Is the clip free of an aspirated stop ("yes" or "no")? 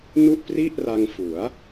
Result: yes